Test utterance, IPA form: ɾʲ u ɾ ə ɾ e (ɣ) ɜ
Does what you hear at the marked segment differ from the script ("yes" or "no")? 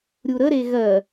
no